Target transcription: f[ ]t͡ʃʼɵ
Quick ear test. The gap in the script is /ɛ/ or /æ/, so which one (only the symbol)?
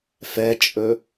ɛ